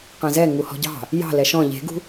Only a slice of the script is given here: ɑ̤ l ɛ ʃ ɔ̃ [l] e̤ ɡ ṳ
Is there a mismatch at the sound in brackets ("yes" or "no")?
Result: yes